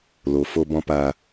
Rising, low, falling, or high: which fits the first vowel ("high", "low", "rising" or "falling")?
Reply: low